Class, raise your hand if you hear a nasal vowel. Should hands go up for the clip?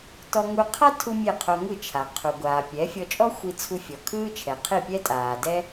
no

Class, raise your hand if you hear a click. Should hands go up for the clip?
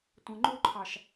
yes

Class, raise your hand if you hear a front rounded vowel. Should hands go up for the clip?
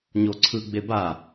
no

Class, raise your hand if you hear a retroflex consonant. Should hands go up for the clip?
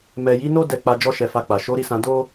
no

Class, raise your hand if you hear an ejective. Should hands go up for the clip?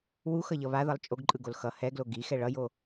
yes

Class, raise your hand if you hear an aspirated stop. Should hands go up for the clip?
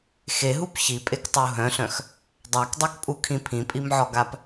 yes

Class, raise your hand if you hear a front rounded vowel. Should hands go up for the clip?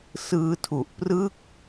no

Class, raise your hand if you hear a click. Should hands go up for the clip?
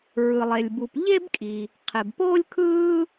no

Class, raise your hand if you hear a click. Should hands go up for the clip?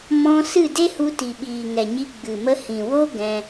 no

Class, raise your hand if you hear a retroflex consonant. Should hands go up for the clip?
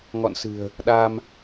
no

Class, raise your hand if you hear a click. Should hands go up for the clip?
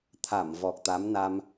no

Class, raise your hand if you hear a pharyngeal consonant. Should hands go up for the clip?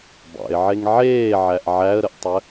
yes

